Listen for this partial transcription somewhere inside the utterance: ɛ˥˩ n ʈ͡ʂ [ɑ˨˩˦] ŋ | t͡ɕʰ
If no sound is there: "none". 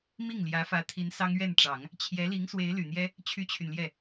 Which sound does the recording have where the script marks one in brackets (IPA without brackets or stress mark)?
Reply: ɑ˨˩˦